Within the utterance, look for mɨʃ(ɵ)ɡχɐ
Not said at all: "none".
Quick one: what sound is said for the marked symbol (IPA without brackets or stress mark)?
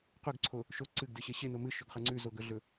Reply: ɵ